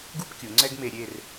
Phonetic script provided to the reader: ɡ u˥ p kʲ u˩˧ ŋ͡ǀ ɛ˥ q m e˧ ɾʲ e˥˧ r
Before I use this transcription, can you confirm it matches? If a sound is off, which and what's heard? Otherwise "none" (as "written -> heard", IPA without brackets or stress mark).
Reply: q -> ɡ